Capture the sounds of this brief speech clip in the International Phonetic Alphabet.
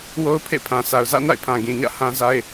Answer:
wo˦ʊ̯pʰḛ˦˨pʰã˨ sʰa˨ʊ̯zä̰˦˨na̰˦˨ɪ̯pʰã˨ ɡĩ˨ɲä̰˦˨ hã˦za˦ɪ̯

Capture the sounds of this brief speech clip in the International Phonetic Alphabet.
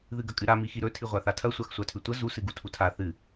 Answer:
ðɨɡɐkʼɨɾa mixiɾɵ tʰiʁʷaθatʰɐ sʷaxsʷatʰʉtʷɐ zu sɨɡutʰutʰa θɨ

